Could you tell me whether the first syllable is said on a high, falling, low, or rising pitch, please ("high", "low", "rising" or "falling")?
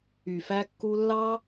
low